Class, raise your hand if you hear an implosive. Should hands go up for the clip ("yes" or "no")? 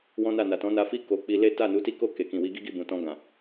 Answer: no